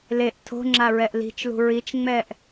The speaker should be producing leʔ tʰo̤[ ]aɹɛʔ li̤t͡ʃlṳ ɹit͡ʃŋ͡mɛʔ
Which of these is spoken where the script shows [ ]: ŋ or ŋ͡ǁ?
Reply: ŋ͡ǁ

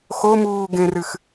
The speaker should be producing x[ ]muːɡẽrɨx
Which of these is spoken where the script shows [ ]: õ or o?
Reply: o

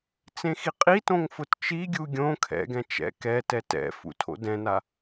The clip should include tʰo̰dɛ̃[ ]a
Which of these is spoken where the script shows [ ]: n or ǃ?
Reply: n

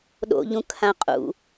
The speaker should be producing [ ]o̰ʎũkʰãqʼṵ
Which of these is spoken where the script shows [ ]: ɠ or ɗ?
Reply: ɗ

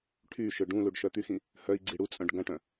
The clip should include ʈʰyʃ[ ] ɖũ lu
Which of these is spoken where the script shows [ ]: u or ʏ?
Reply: ʏ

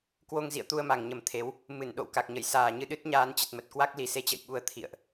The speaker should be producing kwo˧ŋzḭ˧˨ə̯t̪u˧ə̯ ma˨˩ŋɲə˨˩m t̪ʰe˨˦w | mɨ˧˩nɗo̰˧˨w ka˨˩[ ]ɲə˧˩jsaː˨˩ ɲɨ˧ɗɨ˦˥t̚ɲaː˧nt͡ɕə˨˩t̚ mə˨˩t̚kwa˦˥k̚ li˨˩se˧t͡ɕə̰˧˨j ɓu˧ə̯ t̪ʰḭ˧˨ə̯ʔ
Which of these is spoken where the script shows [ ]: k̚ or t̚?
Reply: k̚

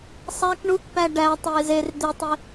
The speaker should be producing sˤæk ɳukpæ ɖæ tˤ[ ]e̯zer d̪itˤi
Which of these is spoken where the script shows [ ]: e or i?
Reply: i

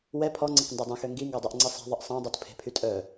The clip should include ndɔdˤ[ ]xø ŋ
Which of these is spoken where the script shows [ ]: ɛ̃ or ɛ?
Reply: ɛ̃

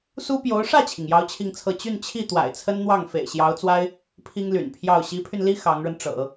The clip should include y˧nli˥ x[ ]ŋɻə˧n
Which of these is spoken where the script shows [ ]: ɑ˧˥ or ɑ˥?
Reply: ɑ˧˥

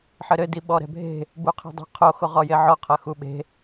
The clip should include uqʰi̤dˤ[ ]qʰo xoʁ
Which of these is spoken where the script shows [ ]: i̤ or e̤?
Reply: e̤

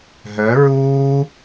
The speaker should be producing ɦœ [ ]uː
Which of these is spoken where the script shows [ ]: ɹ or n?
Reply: ɹ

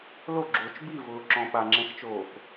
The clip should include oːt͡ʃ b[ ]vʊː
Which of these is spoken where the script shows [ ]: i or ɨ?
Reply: i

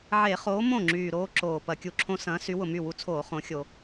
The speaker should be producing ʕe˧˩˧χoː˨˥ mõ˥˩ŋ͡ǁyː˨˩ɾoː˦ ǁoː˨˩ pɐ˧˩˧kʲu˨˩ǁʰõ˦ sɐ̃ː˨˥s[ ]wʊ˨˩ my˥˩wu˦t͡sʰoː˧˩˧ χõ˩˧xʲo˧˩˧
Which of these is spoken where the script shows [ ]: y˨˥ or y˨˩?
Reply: y˨˥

